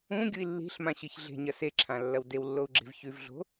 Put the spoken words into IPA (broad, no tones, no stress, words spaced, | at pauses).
ũ ɡʲui̯lːi̤ɬmã ɕɨçɮe̤ɲɐ seǁʰã lːɐwdewlːou̯ ɡ͡ǁe̤vçʉvɮo̤